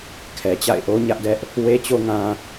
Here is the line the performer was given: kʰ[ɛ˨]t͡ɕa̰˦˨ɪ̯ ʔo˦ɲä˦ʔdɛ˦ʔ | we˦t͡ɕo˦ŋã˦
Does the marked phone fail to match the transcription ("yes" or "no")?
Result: no